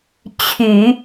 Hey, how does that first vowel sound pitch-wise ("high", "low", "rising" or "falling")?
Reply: low